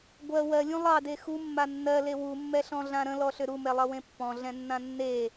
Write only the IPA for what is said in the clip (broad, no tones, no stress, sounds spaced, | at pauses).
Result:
ɡʷ ɜ w ɜ lʲ ũ lˠ ɑ d e x u mː a nː ɜ l e w u mː ɛ ɬ ɔ̃ ɮ ã ɾ ə̃ l ɔ ɬ ʏ ɾ u m ɛ lˠ ʌ w ẽ pː ɔ̃ ɮ ɛ̃ nː ã nː e